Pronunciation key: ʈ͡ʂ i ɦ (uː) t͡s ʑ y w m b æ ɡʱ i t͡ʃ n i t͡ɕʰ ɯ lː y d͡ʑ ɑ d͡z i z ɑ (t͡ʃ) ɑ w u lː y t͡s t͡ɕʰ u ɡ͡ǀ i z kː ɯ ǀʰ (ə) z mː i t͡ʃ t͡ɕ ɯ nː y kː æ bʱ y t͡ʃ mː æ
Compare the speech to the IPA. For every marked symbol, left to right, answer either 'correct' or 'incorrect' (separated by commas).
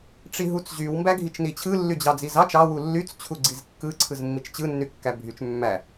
incorrect, correct, incorrect